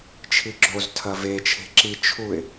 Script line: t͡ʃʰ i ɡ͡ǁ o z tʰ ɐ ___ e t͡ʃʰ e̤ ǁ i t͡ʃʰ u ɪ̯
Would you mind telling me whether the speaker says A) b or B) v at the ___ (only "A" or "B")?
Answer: B